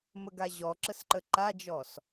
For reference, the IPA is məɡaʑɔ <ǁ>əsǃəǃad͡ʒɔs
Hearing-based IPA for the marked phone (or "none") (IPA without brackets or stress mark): ǁ